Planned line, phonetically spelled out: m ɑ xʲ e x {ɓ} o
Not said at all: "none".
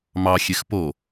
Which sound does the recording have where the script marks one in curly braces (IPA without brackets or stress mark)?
p